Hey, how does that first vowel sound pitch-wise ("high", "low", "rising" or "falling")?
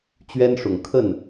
high